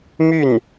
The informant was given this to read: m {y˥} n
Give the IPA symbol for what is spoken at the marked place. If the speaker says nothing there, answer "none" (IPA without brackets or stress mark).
y˥˩